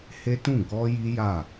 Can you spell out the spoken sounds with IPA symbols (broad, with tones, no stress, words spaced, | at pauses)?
he˦tũ˦˨ ɡɔ˧ ji˦ja˦˨